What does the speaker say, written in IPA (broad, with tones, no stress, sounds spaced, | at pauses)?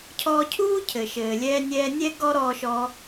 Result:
cʰ ɔː˧ cʰ uː˥ cʰ ɘ˩ ʃ ɘː˩ lʲ ɛː˧ nʲ ɛː˧ nʲ ɛ˥ ɡ ɔ˥ ɾ ɔː˧ ʃ ɔ˧